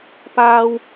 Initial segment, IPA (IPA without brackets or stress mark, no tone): p